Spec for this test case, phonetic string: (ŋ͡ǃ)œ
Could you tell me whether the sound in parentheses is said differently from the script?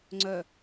yes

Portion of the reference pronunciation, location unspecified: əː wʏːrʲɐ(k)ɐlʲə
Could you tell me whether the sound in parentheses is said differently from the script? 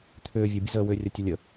yes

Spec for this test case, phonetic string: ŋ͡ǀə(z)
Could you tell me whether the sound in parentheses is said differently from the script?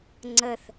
yes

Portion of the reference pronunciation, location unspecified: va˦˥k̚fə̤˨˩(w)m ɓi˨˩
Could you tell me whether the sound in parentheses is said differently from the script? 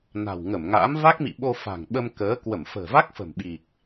yes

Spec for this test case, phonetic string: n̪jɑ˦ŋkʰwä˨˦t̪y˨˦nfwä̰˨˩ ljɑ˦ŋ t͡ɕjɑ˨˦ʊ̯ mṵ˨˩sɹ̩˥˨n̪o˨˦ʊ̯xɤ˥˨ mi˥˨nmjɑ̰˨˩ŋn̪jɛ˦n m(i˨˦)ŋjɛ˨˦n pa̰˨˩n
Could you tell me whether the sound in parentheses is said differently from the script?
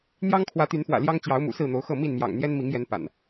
no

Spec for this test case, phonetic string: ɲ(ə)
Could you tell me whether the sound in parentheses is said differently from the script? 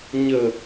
no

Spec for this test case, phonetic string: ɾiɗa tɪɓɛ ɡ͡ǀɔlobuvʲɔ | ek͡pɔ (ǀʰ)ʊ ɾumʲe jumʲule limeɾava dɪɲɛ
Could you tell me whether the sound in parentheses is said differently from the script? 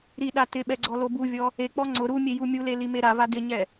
yes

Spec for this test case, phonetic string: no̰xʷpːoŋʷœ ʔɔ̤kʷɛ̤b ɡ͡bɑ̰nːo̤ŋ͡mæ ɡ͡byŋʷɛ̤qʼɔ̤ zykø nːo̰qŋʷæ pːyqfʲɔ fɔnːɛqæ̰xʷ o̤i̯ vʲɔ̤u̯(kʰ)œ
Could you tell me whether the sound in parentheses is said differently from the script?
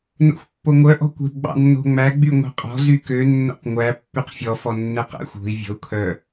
no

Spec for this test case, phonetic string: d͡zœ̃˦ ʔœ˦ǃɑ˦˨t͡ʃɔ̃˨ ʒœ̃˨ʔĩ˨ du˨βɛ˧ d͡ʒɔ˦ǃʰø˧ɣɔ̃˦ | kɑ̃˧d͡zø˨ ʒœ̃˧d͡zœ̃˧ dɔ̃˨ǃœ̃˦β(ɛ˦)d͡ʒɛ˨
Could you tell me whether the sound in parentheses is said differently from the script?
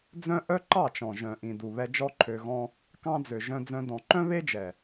yes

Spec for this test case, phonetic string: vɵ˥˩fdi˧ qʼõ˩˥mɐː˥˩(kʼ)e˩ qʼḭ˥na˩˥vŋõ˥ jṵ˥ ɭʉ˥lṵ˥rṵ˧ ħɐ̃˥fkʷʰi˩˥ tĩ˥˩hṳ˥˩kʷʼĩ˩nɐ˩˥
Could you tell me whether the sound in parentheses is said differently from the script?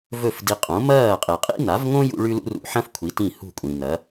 yes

